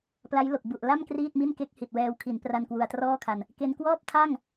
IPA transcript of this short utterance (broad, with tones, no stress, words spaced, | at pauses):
pla˦˥jlo˨˩k̚ bu˨˩ʔla˥˩m kriː˥˩t̚mi˥˩n ke˦˥k̚hi˨˩t̚wɛː˧w kʰi˩˦npra˧n kwu˧a̯trɔː˥˩kʰa˧n | ke˧nkwɔː˥˩p̚tʰa˥˩ŋ